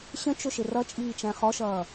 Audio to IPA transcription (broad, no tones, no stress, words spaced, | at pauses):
ɕə̃t͡ʃʊʃɪ rʌt͡ʃʼiːt͡ʃæ̃ χɔʃʌː